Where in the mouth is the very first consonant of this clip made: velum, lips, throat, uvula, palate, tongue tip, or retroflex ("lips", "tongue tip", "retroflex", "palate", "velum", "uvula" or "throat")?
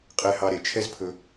uvula